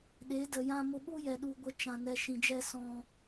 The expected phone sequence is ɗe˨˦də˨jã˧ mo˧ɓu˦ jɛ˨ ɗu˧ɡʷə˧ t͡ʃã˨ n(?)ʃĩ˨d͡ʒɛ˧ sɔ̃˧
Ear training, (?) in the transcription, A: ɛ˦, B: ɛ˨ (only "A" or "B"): B